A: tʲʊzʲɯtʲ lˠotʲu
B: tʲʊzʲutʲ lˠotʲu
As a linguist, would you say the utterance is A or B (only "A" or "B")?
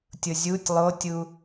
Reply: B